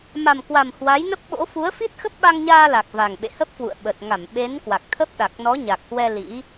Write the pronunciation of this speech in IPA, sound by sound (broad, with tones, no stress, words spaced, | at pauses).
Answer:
ma˨˩mkwa˨˩m hwa˨˦jnə˦˥p̚ɓo̰˧˥ fu˨˦ə̯fi˦˥t̚xə˦˥p̚ ɓa˧ŋɲaː˧la˨˩k̚ va˨˩ŋɓḛ˧˨hə˦˥p̚kwṵ˧˨ə̯ ɓə˨˩t̚ŋa˧˩m ɓe˨˦nkwa˨˩k̚t̪ʰə˦˥p̚ ɗa˨˩k̚nɔ˨˦ɲa˨˩k̚hwɛ˧ lḭ˧˥